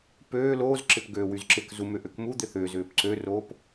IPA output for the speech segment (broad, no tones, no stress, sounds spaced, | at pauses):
p øː l oː z ǁ ɪ p ɡ øː w y z ǁ ɪ k z u m ʏ ʔ ø k m u d̪ ɪ θ ʏː z ʏː p ǀ ø r oː p